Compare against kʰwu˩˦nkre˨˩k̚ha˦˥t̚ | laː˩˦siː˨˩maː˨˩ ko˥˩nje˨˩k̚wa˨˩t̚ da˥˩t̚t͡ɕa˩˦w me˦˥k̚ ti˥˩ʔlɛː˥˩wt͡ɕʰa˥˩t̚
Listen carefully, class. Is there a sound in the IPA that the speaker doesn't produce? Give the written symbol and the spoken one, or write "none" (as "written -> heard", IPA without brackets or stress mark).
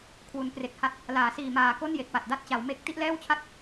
none